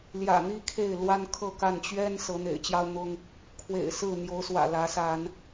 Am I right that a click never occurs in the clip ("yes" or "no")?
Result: yes